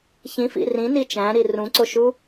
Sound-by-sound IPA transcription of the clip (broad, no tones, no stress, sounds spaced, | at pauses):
ç ĩ f ḭ r ĩ n i t͡ʃ æ̃ ɾ i r ũ ǀ o ʃ u